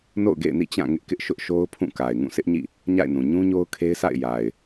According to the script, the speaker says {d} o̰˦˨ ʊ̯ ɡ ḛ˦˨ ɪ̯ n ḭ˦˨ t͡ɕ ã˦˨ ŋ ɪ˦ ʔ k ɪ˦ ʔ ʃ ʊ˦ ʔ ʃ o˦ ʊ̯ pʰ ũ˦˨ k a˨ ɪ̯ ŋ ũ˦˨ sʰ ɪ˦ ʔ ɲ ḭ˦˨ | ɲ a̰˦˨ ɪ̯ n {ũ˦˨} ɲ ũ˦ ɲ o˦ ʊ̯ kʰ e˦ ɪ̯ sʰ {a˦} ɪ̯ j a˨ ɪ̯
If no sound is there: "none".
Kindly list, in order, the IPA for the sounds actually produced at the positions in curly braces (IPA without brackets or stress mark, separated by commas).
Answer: n, ũ˨, a̰˦˨